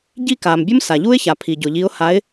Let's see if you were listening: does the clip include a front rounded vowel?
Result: no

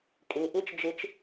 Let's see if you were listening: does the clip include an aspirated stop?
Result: no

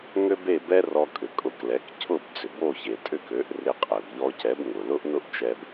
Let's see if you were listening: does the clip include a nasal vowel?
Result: no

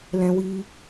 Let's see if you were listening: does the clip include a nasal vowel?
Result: yes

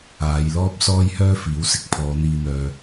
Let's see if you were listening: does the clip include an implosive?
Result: no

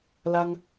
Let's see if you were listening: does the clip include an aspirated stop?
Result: no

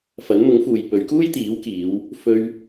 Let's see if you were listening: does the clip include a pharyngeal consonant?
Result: no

